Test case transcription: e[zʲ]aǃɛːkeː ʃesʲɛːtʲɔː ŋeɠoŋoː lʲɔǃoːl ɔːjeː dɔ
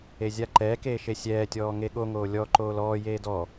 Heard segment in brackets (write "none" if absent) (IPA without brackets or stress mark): zʲ